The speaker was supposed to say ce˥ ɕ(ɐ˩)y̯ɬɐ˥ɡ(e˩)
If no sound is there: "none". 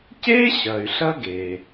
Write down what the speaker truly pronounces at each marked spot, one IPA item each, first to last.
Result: ɐ˩, e˩

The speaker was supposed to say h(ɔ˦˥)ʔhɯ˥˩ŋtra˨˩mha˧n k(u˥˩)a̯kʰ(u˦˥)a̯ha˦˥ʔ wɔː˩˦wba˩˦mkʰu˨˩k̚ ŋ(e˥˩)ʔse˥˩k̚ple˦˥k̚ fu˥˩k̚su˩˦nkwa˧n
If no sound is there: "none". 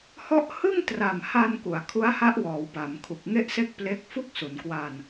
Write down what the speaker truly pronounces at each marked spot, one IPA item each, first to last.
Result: ɔ˦˥, u˩˦, u˦˥, e˥˩

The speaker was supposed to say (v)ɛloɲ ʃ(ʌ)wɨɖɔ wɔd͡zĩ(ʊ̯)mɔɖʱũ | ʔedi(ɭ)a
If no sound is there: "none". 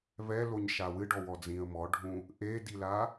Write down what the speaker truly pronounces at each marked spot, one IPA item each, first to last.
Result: v, a, ə̯, l

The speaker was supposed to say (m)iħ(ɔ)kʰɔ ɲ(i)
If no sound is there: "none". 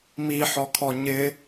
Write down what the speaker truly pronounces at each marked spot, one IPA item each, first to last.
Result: m, ɔ, ɪ

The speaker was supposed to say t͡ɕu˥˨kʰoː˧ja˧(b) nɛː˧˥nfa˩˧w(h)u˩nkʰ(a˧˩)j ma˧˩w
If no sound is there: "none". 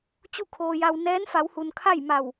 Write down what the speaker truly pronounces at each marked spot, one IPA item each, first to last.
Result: w, h, a˥˨

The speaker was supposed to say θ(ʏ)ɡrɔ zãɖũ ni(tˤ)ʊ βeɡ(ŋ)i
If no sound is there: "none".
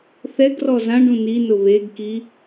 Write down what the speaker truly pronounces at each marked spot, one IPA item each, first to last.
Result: ɛ, n, k

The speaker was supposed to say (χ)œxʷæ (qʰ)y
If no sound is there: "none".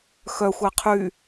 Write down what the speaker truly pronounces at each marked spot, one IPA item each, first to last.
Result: x, qʰ

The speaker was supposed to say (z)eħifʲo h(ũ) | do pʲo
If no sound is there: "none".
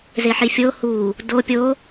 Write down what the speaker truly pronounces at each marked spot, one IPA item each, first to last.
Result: z, u

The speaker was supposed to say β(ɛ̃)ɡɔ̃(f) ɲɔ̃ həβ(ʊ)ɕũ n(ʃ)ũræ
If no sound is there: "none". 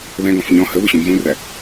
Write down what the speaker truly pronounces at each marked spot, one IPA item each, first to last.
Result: ɛ̃, f, ʊ, z

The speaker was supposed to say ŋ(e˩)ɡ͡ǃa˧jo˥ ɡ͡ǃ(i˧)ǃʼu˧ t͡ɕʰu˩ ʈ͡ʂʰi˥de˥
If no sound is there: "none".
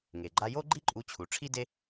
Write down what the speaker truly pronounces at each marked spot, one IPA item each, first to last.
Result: e˩, i˥

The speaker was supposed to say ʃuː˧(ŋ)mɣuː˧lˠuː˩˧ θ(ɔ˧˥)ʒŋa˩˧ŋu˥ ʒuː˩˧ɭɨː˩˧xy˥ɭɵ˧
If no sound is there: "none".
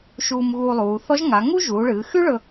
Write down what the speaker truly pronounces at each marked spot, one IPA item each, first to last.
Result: none, ɔ˧˥

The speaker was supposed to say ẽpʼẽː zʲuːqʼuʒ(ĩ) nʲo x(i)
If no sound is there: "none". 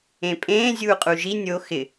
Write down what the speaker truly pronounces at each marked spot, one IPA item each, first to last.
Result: i, ɪ

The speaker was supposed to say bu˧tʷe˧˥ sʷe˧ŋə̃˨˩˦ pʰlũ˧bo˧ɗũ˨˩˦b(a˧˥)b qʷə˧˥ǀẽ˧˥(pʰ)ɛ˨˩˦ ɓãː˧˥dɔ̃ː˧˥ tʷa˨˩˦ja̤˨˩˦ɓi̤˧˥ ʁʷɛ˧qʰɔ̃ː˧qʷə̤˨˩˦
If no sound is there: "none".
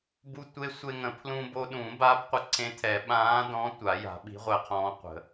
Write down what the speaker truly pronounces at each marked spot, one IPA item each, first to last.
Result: a˧˥, tʰ

